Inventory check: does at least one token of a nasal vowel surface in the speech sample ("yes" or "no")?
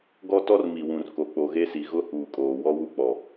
yes